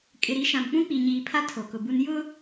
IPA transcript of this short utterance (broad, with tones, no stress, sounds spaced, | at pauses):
kʼ ɪ˨ ɾ i˨˦ ʃ ã˨ m k͡p ũ˦ k͡p i˨ ɲ iː˨ pʰ a˦ tʰ o˨ k ʊ˨ b u˦ n j ʊ˦